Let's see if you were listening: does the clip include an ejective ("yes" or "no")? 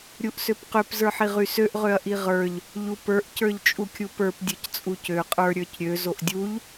yes